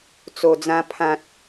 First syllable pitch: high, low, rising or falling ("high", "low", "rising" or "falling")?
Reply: low